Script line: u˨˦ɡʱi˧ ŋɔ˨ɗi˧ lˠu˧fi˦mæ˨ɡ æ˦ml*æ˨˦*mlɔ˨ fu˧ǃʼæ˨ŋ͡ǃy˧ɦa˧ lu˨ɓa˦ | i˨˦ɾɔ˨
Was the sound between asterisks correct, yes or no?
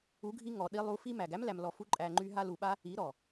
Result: no